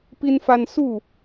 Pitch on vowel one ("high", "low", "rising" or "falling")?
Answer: high